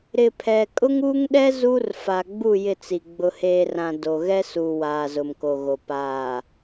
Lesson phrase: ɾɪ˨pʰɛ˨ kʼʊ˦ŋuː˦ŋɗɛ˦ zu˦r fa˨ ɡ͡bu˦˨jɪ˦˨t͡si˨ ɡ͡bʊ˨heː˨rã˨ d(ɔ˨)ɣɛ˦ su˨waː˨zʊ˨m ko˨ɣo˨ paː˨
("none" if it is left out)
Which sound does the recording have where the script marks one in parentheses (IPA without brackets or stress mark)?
o˨